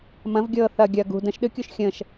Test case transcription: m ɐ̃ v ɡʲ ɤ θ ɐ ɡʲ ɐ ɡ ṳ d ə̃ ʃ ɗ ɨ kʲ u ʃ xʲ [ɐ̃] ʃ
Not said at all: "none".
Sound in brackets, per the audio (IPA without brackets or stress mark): ə̃